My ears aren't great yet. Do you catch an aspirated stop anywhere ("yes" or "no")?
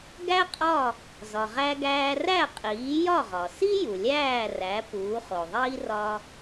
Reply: no